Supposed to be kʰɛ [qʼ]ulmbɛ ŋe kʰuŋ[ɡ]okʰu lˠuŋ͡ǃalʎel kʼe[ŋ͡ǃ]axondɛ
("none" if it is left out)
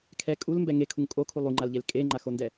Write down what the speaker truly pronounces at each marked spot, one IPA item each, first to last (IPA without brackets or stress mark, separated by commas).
kʼ, kʼ, ŋ͡ǃ